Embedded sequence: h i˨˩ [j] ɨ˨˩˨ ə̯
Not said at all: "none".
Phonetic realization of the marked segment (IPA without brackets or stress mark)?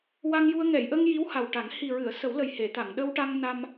ɹ